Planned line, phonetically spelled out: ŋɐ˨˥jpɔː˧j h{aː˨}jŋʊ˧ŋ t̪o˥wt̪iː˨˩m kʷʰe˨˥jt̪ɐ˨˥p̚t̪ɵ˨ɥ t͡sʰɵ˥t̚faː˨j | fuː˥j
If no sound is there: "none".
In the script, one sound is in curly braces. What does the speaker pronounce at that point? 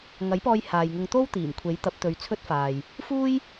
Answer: aː˨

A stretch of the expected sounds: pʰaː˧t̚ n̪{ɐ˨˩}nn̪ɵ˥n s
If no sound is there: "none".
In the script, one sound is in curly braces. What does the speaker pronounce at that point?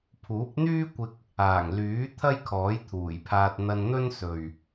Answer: ɐ˧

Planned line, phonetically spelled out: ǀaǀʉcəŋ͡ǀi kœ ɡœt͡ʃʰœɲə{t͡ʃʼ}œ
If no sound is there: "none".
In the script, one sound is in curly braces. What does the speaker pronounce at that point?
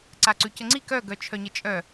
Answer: t͡ʃʼ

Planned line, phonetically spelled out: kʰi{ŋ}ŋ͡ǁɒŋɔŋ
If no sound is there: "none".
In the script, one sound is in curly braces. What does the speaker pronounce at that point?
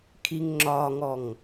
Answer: ŋ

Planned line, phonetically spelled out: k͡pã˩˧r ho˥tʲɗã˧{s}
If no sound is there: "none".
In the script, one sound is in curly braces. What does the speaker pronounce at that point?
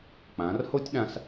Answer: s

